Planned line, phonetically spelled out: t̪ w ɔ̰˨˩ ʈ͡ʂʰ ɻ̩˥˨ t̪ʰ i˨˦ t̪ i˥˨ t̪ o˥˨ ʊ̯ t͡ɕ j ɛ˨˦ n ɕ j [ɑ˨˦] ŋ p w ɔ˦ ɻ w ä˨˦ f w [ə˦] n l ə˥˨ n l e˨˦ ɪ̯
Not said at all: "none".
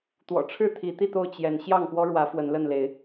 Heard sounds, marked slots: ɑ˥˨, ə˨˦

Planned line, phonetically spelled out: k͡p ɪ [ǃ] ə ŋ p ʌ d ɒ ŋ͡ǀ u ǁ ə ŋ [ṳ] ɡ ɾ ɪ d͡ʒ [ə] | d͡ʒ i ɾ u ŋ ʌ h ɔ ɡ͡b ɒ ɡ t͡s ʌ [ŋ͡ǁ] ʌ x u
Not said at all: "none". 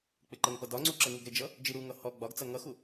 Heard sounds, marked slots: ǃ, u, ʌ, ŋ

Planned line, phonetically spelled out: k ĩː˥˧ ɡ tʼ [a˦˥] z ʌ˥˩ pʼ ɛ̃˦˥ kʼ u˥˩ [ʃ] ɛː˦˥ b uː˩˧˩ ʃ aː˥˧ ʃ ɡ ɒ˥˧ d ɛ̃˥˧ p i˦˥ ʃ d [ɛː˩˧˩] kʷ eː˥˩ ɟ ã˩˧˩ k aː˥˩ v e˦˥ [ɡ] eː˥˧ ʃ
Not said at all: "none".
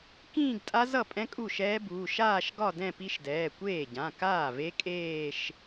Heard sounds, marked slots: a˦˥, ʃ, ɛː˩˧˩, kʼ

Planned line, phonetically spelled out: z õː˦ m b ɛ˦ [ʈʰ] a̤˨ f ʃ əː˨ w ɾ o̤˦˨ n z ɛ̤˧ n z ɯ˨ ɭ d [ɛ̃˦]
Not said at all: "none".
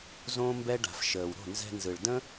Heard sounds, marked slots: ɖ, ə̃˦

